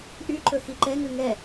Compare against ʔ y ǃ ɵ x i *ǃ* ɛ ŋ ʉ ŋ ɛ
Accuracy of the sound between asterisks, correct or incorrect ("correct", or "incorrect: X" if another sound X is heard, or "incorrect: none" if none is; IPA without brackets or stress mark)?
correct